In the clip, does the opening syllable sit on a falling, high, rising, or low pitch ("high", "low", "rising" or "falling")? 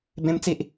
high